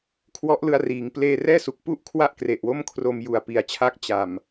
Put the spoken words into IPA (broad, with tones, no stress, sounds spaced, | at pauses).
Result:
kʰ w ɔ˦˥ ʔ l ɯ˧ a̯ r iː˩˦ ŋ p l eː˥˩ r ɛː˥˩ s u˨˩ k̚ p u˥˩ ʔ kʰ w a˥˩ ʔ k r e˨˩ ʔ w o˥˩ m kʰ r o˧ m j u˨˩ a̯ p i˨˩ a̯ t͡ɕʰ a˦˥ k̚ t͡ɕ a˨˩ m